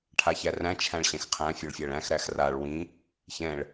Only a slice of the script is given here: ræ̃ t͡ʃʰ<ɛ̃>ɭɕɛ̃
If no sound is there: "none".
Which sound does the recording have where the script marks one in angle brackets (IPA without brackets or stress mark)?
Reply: æ̃